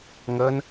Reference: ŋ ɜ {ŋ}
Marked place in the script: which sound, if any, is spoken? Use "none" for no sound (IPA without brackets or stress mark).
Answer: n